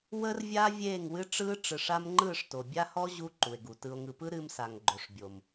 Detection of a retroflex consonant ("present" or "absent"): present